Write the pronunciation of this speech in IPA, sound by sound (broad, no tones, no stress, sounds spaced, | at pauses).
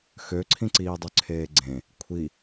x ø ǀʰ ĩ ǀ iː dˤ ø ǀʰ eː ɡ͡ǀ ẽ | kʷʰ i